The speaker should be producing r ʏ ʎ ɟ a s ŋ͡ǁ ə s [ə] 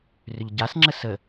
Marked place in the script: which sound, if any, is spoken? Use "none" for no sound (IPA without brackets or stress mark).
ə